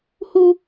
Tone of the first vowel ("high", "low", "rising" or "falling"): high